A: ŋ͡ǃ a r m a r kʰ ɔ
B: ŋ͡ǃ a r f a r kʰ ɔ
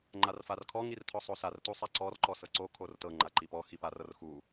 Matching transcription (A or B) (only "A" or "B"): B